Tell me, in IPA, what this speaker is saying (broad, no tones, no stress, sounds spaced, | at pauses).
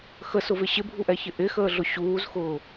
x ə s ʊ v ɪ ɕ ɪ bʱ u ʔ ɛ ç ɪ ʔ ɪ x əː ɮ ʊ ɕ uː z x ʊː